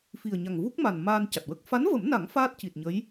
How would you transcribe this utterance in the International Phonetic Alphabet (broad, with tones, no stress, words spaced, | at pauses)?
fi˨˩ə̯ɲa˨˩ŋvu˦˥k̚ma˨˩n maː˧nca˨˩t̚wə˦˥k̚ fa˧˥nvə˨˩˦mna˨˩˦ŋ faː˦˥t̚ci˨˩t̚ɲə˧˥j